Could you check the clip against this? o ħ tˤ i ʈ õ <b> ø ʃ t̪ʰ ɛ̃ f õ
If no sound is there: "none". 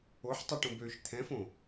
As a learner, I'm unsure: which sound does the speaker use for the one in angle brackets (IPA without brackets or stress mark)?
b